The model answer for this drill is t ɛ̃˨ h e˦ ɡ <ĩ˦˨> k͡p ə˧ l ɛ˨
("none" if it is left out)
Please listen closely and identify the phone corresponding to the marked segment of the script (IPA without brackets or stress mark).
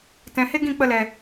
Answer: ĩ˦˨